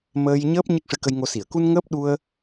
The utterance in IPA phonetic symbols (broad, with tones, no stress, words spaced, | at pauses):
məː˧jɲəː˦˥p̚ ɲɨ˦˥k̚ʂɨ˧kə˧jŋo˧ si˨˩˨ə̯ku˧n ŋəː˦˥p̚ɗu˧ə̯